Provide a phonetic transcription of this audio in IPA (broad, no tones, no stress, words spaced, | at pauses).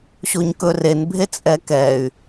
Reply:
ɕoɲkɵrenbʱe t͡sʼɛkɛy̯